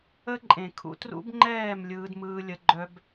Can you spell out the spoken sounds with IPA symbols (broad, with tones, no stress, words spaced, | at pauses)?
ə˦ ǃʼẽ˨ kʰṵ˧trṵ˦bŋ͡ǃɛː˦˨m lʲɯː˧dmɯː˧lʲə˧ ɡ͡ǃœ˦b